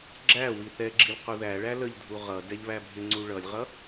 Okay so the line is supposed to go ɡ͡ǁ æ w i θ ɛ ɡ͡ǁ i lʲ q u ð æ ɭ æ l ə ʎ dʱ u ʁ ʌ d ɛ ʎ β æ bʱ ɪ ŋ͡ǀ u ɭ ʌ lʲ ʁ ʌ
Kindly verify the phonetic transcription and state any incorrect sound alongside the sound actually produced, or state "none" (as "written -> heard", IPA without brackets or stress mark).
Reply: none